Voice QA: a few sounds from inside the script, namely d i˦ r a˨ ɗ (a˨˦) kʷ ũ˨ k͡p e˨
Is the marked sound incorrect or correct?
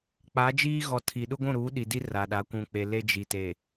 correct